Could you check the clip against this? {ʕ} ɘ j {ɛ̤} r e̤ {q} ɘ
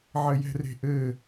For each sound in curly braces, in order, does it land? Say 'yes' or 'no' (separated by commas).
yes, yes, no